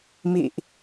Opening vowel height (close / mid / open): close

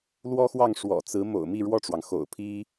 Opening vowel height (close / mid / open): mid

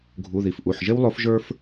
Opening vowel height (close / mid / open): close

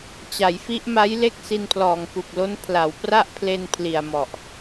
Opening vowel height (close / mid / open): open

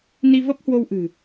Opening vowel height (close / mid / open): close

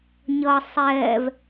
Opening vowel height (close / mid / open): mid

